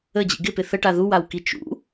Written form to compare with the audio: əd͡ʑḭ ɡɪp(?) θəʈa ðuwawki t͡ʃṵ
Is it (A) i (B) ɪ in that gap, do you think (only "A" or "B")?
B